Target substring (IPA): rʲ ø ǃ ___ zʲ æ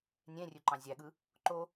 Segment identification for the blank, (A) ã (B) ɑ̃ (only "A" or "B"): B